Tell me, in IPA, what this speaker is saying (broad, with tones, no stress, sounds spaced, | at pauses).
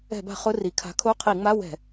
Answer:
ɛ̤˧˩˧ b a̤˧˩˧ χ ʊ˧˥˧ r i˩˧ kʰ a̤˨˥ kʰ o˧˥˧ qʰ i˧˩˧ ŋ͡m a˧˥˧ w ɛ̤˧˩˧